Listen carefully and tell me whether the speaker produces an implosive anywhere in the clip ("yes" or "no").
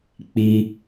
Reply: no